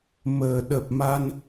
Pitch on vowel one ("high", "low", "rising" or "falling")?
low